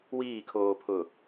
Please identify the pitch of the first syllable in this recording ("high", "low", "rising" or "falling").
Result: falling